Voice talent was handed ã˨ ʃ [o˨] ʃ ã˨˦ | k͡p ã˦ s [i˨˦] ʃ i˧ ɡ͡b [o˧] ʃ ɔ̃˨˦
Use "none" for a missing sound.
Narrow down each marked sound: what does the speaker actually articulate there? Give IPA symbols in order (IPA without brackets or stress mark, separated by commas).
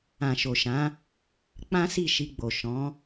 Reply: o˨, i˦˨, o˨